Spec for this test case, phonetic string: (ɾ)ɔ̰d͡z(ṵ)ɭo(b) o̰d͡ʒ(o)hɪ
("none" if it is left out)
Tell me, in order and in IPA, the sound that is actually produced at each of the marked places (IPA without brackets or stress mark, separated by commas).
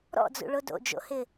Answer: ɾ, ṵ, d, o̰